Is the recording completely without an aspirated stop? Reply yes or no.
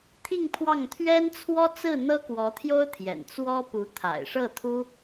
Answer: no